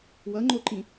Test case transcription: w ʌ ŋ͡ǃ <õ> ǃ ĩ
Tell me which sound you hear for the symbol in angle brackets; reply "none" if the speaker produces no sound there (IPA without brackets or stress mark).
o